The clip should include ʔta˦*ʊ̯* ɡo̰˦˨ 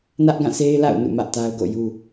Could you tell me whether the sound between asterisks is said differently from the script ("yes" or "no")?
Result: no